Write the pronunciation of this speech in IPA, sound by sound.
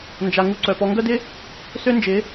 n d͡ʒ a˨ ŋ u˧ ǀ œ˨ p ɔ˧ ŋ ɡ œ˦ d ɪ˦ | s ø˦ n d͡ʒ ɪ˨˦

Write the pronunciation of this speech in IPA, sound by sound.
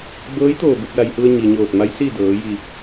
b ɤː˧˥ j t̪ oː˧˩ b u˥˨ p̚ l a˩ j h u˧ ə̯ ɲ i˩ ɲ oː˧˩ t̚ m a˧˥ j s iː˥˨ d ɤː˩˧ j i˧˩

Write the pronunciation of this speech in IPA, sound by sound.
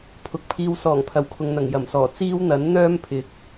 pʰ ʊ˨ k̚ pʰ iː˧ w s ɔː˨˩ ŋ pʰ ɐ˨˩ w kʰ ʊ˨ ŋ n̪ ɐ˨˩ ŋ j ɐ˨˩ m s ɔː˨˩ t͡s iː˥ w n̪ ɐ˨˥ n n̪ œː˥ m pʰ ɪ˨˥ k̚

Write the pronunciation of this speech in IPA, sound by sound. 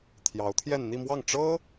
t̪ʰ j ɑ˧˥ ʊ̯ t̪ʰ j ɛ˥˧ n n̪ i˥˧ m w ɑ˥˩ ŋ ʈ͡ʂ ɤ˥

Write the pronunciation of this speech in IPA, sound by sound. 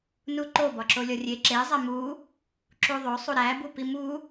n u ǃ o b ɒ ǁ o lʲ ɒ rʲ e ǁ e zˤ æ m u | ǁ u ðˤ o sˤ u ɾ æ b u p i m u

